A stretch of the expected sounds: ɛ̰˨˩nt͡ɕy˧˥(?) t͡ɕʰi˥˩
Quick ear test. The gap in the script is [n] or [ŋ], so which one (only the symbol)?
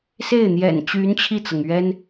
n